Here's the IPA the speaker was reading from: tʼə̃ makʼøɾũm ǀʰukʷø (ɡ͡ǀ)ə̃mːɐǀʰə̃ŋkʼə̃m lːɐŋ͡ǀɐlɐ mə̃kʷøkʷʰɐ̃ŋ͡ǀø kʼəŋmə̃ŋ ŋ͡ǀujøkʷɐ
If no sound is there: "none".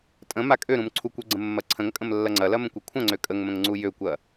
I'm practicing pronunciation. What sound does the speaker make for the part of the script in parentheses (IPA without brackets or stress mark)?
ɡ͡ǀ